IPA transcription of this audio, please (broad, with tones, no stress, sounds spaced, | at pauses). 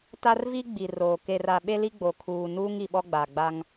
t a˦ r v i˦ ɡ͡b i˨ r oː˨ k e˨ r a˨ ɓ e˦ l i˦ ɡ͡b o˨ kʰ uː˨ n uː˦ ŋ i˨ ɓ ɔ˦ ɡ͡b a˨ ɡ͡b a˦ ŋ